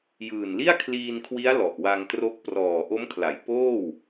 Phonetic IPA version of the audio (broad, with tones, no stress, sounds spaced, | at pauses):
j ɯː˨˩ n l i˥˩ a̯ kʰ l iː˧ n kʰ w i˦˥ a̯ l ɔ˨˩ ʔ w a˧ ŋ t r o˦˥ k̚ p r ɔː˨˩ ʔ o˦˥ m kʰ l a˩˦ j p oː˥˩ w